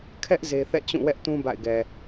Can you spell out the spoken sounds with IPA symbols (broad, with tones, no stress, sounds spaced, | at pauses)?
kʰ ɛ˦ ʔ z e˦ θ ɛ̰˦˨ t͡ɕ ũ˦˨ w ɛ˦ ʔ t ũ˦ b a̰˦˨ ɪ̯ ɡ ɛ˨